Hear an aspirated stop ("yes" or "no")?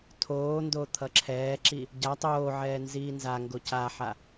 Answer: yes